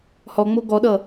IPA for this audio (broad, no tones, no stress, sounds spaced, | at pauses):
h ɔ ŋ͡m o ɡ ɔ ɗ ʌ